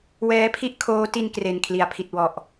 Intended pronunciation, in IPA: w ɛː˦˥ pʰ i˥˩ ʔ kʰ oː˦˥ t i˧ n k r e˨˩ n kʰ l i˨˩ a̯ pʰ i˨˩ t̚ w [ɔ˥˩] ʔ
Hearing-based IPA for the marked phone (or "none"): ɔ˨˩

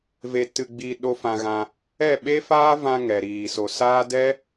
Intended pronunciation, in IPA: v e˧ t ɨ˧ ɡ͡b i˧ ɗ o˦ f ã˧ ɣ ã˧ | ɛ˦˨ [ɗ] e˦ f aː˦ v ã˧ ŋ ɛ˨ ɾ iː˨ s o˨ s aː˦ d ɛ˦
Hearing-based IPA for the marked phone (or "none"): ɓ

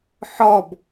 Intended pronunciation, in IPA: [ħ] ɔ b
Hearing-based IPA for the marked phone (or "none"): ħ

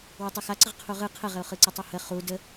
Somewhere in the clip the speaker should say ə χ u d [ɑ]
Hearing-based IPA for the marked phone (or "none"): ə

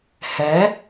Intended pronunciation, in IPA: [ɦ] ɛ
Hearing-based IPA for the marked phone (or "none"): h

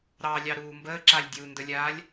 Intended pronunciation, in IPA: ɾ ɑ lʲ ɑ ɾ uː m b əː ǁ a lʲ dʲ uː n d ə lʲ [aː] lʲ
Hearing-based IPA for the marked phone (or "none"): aː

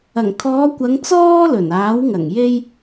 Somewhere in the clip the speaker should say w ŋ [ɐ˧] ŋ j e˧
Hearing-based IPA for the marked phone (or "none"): ɐ˨˩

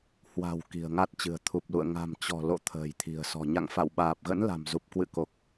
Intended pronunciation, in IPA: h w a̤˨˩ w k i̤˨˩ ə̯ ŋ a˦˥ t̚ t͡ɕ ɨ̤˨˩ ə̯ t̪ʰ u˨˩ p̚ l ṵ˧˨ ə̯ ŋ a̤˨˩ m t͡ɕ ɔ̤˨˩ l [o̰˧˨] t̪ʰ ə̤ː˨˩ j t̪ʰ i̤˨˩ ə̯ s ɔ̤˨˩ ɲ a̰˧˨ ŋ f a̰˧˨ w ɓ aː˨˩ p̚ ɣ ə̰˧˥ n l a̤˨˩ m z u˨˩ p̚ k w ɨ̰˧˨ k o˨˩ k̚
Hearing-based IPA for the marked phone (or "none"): o̰˧˨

